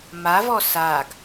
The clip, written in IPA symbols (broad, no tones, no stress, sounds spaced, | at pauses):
m a v ɔ s a ɡ